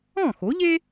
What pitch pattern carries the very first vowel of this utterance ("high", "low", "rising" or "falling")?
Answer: falling